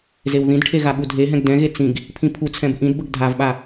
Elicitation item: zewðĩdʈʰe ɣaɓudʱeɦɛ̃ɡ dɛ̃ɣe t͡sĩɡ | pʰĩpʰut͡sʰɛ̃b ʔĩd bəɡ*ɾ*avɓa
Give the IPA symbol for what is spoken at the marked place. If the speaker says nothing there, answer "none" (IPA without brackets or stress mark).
dʱ